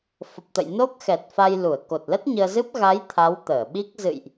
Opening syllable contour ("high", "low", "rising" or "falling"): low